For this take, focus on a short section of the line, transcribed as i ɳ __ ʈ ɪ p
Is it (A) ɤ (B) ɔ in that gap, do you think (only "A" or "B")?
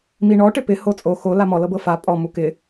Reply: B